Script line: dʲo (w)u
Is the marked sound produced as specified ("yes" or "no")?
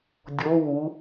yes